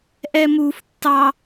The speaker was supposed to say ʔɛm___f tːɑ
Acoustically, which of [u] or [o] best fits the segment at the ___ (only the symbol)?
u